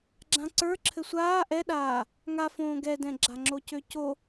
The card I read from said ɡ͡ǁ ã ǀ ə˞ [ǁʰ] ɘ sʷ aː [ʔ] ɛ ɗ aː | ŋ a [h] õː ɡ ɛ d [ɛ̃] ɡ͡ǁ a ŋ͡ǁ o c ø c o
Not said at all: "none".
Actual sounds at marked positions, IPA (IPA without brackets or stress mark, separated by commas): ǁʰ, ʔ, f, ɛ̃